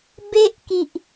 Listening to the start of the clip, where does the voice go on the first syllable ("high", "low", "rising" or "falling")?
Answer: high